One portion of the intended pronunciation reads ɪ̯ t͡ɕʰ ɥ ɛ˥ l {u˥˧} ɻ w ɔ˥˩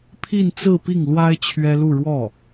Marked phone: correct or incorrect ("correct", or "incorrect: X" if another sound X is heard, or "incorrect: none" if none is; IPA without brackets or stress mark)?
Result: correct